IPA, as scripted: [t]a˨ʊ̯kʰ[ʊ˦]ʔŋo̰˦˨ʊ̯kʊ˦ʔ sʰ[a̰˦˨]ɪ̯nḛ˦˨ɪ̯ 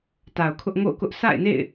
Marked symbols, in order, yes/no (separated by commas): yes, yes, yes